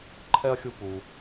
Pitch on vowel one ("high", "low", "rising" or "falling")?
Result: high